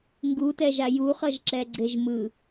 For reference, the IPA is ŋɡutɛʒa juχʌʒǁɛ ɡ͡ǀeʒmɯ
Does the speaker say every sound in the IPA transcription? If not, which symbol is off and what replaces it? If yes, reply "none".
none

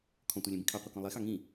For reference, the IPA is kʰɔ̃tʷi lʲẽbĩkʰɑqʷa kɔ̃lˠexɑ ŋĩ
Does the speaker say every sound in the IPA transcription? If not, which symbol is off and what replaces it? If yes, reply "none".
none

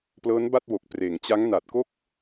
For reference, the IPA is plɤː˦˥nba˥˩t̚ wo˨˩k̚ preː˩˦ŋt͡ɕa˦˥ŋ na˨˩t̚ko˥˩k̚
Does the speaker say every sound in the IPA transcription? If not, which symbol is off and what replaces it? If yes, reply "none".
none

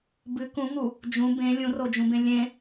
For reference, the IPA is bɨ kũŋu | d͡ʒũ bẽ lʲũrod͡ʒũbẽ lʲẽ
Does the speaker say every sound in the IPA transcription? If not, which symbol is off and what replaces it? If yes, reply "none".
none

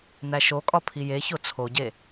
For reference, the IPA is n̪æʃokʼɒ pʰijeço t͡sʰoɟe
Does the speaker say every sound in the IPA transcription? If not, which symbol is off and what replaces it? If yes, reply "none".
none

